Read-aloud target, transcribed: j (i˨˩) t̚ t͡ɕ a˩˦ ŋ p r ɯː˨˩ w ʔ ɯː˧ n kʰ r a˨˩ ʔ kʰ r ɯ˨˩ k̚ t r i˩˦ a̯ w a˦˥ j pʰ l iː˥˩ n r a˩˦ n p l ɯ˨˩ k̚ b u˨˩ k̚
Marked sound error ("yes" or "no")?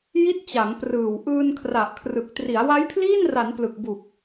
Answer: yes